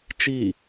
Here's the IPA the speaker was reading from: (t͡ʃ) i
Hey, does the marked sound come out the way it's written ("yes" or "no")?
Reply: yes